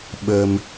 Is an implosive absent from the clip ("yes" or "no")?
no